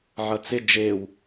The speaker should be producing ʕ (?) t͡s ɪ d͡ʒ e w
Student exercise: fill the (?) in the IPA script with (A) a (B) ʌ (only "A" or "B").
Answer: B